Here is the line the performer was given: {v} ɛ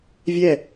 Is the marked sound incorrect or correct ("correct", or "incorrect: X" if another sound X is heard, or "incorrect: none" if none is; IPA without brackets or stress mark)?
incorrect: vʲ